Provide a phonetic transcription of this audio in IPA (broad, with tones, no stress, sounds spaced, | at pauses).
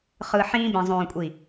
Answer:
χ ɯ˨ ħ ĩː˧ b ĩ˨ zˤ õː˨ kʷʼ i˨